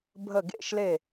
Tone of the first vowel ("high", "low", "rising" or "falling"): falling